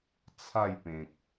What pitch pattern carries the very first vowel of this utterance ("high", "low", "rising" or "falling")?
falling